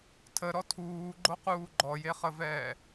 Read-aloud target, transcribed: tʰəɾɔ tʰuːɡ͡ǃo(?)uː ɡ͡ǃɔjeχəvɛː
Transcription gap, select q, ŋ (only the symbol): q